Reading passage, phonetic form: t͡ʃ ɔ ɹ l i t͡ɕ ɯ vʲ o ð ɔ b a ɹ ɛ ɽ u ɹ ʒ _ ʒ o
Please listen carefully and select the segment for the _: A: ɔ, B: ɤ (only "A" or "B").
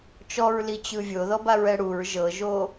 B